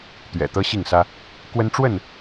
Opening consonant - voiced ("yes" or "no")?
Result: no